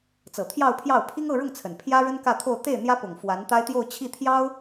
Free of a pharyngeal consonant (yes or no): yes